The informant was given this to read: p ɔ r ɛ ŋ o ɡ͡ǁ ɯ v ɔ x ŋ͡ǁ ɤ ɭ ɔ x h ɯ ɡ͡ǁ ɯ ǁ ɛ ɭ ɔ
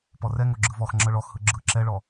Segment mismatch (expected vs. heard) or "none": none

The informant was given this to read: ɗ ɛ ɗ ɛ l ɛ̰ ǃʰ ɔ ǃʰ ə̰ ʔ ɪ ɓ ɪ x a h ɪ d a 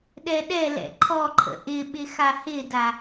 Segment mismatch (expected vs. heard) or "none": none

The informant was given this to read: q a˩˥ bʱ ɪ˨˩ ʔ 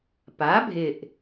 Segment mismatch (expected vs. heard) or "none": q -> p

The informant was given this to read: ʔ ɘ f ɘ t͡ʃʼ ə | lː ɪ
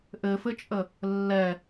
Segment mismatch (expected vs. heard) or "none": ɪ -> ɛ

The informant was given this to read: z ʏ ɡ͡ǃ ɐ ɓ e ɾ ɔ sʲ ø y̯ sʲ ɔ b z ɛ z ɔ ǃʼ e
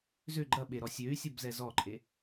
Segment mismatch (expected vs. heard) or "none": none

